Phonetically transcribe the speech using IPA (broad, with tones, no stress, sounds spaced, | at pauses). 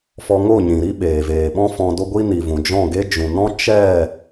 f ɔ˧ ŋ o˦˨ ɲ ĩ˨ ɾ i˦ ɓ eː˨ v eː˨ ɓ ɔ̃˦ f ɔ̃˧ d o˦ ɡʷ i˦ n i˨ v ũ˨ d͡ʒ ɔ̃˦˨ ɡ e˦ d͡ʒ ũ˨ n ɔ̃˦ t͡ʃ ɛ˦˨